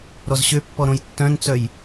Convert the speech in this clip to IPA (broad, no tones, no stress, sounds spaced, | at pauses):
ɾ ɔ z ɕ ø pː ɔ ɾ õ j tː œ̃ n t͡s œ j